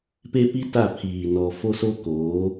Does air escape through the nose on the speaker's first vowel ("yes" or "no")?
no